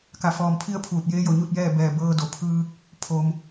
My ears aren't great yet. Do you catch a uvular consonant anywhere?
no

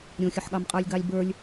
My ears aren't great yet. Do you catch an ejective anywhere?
yes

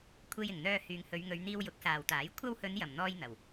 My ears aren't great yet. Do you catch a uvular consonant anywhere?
no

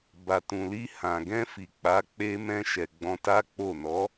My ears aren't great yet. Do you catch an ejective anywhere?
no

